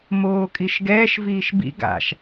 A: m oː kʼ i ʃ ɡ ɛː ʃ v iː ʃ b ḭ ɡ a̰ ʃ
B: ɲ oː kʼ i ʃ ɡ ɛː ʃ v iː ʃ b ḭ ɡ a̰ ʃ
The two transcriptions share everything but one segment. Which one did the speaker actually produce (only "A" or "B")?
A